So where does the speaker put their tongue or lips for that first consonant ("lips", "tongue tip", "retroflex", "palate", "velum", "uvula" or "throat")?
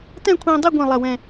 tongue tip